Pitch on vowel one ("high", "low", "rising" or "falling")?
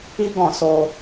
high